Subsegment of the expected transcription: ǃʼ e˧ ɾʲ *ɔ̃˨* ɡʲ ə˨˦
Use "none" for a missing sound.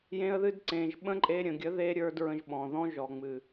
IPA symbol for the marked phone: ə̃˨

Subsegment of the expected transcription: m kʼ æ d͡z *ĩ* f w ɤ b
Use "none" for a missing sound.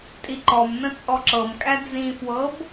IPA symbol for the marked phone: ĩ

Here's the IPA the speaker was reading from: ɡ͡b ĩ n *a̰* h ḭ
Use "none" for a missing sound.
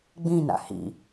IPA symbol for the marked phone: a̰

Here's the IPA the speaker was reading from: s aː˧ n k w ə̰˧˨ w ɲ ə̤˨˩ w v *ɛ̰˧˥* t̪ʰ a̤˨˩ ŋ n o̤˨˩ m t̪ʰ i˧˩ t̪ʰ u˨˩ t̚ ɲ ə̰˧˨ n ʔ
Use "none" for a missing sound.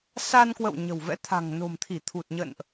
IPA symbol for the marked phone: ɛ̰˧˥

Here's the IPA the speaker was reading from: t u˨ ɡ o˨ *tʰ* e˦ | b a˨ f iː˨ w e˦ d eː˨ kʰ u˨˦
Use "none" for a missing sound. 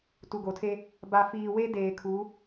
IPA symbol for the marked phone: tʰ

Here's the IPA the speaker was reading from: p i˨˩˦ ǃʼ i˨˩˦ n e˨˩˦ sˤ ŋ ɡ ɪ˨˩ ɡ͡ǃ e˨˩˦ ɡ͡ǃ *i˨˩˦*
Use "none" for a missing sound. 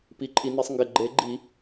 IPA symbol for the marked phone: i˨˩˦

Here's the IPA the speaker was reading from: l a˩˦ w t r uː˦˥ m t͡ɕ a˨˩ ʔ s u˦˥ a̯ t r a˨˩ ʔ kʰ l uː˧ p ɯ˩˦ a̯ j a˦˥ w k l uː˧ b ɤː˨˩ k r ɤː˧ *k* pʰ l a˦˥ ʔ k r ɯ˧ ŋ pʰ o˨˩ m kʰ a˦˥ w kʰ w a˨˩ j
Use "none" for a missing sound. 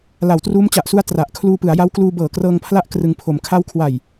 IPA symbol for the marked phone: ŋ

